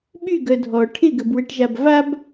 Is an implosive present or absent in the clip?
present